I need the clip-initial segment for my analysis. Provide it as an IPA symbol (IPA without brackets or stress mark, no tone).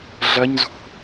ɮ